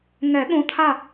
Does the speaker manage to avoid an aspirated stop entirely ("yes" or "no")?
no